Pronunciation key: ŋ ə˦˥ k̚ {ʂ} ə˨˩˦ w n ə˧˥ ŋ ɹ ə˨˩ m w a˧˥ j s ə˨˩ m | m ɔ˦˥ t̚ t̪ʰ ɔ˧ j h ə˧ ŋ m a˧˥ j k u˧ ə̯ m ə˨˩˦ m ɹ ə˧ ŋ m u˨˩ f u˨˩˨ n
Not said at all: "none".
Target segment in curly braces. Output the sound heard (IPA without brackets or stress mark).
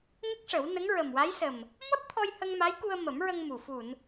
ʂ